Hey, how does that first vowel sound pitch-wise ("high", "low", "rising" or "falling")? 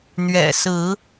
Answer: low